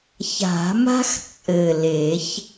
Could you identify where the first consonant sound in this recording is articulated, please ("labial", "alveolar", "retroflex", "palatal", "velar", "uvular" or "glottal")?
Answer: palatal